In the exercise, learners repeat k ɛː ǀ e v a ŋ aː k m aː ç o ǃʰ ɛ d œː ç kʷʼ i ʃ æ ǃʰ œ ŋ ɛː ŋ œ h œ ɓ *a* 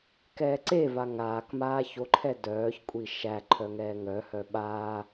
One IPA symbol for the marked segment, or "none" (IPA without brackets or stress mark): aː